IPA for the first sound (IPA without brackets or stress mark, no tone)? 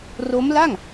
r